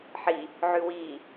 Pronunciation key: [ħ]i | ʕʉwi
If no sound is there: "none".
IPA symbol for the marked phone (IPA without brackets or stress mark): ħ